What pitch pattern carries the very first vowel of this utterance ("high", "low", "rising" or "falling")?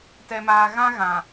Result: low